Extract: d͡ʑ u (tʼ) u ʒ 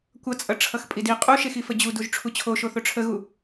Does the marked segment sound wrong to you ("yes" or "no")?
yes